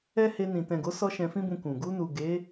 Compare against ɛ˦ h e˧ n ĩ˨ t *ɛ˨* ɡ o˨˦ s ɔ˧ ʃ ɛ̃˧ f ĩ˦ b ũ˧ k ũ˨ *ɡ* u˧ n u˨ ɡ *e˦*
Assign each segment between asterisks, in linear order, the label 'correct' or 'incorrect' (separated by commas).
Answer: incorrect, correct, incorrect